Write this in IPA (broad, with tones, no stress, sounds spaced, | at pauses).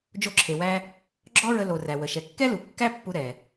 d͡ʒ o˧ ǁʰ e˩ w æ˧ | ɡ͡ǁ ɔ˥ ɹ ə˧ l o˩ r æ˩ w ə˩ ʃ ɛ˩ kː ɛ˥ l u˩ kː æ˥ pː u˧ ɾ ɛ˩